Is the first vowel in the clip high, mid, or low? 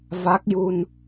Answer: low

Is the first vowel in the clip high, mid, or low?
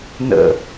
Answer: mid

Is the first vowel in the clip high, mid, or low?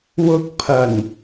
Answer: high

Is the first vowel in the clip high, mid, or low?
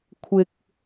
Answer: high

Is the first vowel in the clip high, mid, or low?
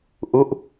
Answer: high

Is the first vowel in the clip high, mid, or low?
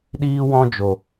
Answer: high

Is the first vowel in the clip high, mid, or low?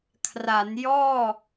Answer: low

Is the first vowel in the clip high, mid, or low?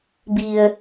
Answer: high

